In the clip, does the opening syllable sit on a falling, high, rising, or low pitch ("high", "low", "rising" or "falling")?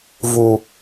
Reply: low